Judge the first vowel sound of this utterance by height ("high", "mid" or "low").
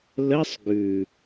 mid